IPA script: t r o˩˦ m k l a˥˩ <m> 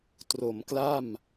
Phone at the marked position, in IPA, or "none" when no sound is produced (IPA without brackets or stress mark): m